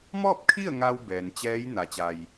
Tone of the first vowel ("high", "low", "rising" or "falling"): falling